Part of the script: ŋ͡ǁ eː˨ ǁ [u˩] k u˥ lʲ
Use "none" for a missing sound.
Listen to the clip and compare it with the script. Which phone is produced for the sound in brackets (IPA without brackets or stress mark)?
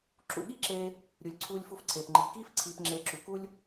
u˩